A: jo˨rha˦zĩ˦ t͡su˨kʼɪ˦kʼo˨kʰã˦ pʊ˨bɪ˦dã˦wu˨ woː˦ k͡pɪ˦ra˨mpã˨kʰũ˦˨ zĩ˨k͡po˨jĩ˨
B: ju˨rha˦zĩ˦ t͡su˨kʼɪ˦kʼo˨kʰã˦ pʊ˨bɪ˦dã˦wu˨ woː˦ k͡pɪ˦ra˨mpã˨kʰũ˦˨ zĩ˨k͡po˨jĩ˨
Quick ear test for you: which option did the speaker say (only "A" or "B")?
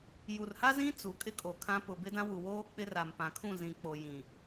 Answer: B